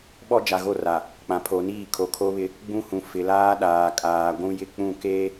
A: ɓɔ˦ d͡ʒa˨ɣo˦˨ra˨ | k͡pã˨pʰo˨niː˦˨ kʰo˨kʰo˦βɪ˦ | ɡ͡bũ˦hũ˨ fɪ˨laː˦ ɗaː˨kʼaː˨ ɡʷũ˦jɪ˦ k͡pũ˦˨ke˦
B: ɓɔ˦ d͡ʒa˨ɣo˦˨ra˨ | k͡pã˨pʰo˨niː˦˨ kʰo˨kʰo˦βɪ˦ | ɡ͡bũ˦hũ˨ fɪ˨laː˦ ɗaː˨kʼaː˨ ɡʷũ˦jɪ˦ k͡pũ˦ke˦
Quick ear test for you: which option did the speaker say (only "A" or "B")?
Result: A